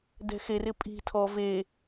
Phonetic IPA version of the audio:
d ɛ̤ x e r ɪ pʼ i̤ tʰ ɔ v e

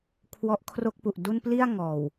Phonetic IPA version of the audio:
kʰ w ɔ˦˥ ʔ kʰ r o˥˩ k̚ p u˨˩ ʔ d u˥˩ n p l i˥˩ a̯ ŋ ɔː˨˩ w

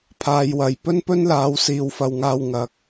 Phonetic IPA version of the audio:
pʰ aː˧ j w ɐ˨˧ j p ɵ˥ n p ɵ˥ n l aː˨˥ w s iː˨˧ w f ɐ˨ w ŋ aː˧ w ŋ ɐ˨˥ k̚

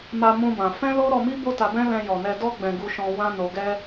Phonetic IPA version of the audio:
m a˧ m ũ˦ b ã˧ f ɛ̃˦ l o˦ ɾ ɔ˧ m i˦ b o˦ t a˧ b ɛ̃˦ l ɛ̃˧ j ɔ˨ n ɛ˧ d ɔ˦ ɡ͡b ɛ̃˧ ɡ u˧ ʃ ɔ̃˧ w ã˦ n o˧ ɡ ɛ˦

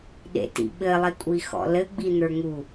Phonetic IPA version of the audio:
ɗ ḛ t ḭ ɓ ɘ lˠ i kʷʼ i x ɔ̰ l ɘ ɡ͡b i n̪ ə˞ ŋ u

